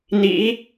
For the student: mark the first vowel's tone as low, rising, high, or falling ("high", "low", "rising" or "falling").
rising